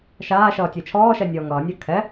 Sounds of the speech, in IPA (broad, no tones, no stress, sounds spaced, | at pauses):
ʃ aː ʃ ʌː tʲ ɛ t͡ʃʰ ɔː ʃ ɛ nʲ ɔː ŋ ʌː nʲ a kʰ ɛ